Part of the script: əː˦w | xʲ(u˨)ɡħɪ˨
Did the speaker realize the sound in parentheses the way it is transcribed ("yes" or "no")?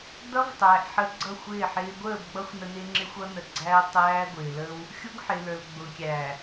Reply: no